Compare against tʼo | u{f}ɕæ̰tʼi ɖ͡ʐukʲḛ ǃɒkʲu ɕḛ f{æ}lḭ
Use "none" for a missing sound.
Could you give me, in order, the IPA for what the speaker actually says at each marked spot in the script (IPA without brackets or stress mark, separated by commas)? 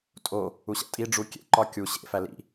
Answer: none, æ